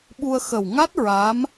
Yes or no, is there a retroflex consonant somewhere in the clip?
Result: no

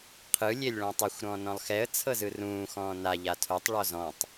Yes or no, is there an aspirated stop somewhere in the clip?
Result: yes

